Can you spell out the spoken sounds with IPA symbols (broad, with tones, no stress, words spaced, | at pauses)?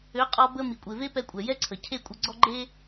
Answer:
ø˨˦qʼɔ˧bə˧ mi˨kʷʼe˨ve˦pɛ˧ kʷʼɛ˨jɛ˦ǀʰə˨ cʰe˦˨kʷʼə˧ɡ͡ǀɔ˦ ɡ͡ǃe˦